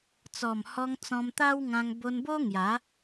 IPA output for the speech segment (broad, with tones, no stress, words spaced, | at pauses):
t͡sɔ˨˩mhɔ˧ŋ t͡sɔ̃˧mt̪a˦wŋã˧ŋ bo˧nbo˦ ŋja˨˦